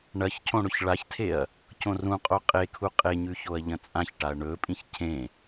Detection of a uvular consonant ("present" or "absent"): present